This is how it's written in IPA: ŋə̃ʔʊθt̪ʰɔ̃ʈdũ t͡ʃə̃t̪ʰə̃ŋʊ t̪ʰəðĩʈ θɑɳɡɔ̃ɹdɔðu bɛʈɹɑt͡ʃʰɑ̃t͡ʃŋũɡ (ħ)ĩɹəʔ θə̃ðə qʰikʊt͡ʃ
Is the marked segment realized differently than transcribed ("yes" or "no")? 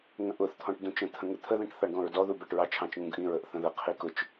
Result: yes